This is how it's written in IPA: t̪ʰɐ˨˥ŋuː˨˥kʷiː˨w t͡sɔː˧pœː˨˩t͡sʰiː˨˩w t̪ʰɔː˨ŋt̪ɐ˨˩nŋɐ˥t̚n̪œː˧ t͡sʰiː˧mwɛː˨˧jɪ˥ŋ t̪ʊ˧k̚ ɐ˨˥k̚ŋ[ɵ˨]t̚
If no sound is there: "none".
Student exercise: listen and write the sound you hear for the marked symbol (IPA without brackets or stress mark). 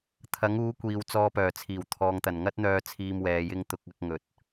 ɵ˨˥